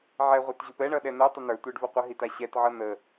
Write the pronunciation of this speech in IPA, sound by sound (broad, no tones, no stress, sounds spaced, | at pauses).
ʕ ɛ ʁʷ ɛ t ʑ u p ɛ ɳ ʌ ɗ ɛ n̪ ɛ tˤ ə n̪ ə˞ tʷ e ɖ v ʌ qʷ ə ɦ i t a ɕ ɛ t ʕ ʌ n̪ ə